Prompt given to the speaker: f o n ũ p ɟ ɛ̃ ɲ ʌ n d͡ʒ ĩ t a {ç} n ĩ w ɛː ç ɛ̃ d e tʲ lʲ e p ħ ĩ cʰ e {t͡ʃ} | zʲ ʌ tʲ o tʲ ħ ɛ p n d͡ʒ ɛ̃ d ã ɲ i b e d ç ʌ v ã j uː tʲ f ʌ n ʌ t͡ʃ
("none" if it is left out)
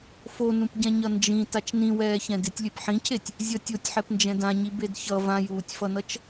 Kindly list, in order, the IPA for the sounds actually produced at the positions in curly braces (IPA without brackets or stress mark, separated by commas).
t͡ʃ, tʲ